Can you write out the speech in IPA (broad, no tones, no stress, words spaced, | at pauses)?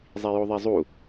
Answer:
zˤijoðˤezˤu